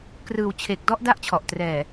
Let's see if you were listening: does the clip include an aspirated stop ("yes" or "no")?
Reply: yes